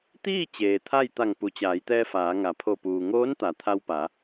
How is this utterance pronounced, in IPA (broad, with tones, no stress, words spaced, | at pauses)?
t̪iː˥˨ t͡ɕeː˩t̪ʰa˥˨jt̪a˧˩ŋ pu˩t͡ɕaː˩˧jt̪ɛː˧ faː˩˧ŋa˩˧pʰo˧˩ puː˩ŋoː˧˥n t̪a˩˧ t̪ʰa˧wpa˩˧